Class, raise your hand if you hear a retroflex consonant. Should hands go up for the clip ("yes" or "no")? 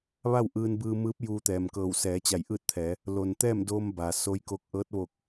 no